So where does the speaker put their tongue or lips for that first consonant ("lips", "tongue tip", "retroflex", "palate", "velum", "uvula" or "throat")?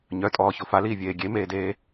palate